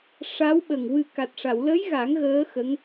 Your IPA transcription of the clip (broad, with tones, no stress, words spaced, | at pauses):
ʂa˧˥wɓə˨˩ŋ wɨ˨˩ka˨˩t̚ʂa˨˩˨wlə˧˥j ɣa˨˩˦ŋ ɣəː˧˥xə˧˥ŋ